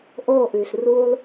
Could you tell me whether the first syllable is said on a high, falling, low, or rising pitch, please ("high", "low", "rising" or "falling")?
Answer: falling